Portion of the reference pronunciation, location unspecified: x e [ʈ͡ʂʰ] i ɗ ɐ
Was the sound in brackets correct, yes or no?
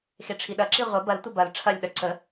yes